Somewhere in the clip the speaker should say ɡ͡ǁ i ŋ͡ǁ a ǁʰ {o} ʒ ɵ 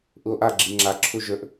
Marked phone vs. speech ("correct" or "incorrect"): incorrect